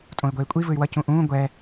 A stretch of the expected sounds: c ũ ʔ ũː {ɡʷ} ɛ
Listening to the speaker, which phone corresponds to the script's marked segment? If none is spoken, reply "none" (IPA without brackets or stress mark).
ɡʷ